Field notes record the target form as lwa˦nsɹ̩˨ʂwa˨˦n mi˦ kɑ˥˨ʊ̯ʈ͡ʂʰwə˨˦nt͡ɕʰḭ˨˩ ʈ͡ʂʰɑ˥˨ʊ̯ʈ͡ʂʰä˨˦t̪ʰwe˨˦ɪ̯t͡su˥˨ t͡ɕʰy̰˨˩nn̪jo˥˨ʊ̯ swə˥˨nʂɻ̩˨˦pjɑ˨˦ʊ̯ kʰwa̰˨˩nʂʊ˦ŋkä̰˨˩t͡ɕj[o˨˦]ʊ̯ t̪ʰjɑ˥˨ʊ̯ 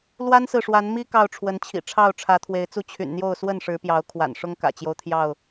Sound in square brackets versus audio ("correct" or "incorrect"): incorrect